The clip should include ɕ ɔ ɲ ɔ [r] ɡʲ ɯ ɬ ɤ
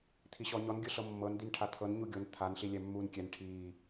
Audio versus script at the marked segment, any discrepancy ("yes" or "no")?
yes